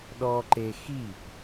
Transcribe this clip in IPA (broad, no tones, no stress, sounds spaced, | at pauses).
ɗ ɔ ǃ e x i p